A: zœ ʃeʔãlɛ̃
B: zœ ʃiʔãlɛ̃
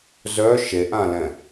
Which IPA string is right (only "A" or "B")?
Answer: A